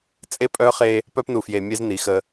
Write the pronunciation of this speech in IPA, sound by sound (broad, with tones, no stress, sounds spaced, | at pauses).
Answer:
t͡sʼ e˦ pʼ œ˦ χ e˦ | p œ˦ p n u˨ f j e˨ mʲ e˦ z n i˨˦ x ə˦